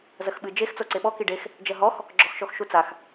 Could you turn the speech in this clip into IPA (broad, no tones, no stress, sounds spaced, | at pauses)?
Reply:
z ɐ x ɓ ɨ d͡ʒ e x t͡s o ǀ e ɓ ɔ k i ɖ e x | d͡ʒ ɐ ɦ ɔ x | ɡ͡ǁ ɔ x ʃ ɔ x ʃ u t͡s a x